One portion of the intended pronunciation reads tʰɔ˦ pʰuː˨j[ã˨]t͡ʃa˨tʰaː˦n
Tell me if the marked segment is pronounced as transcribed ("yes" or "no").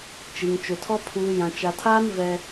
yes